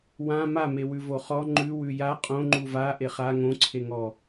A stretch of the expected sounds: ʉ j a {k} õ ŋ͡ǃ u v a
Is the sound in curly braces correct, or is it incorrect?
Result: incorrect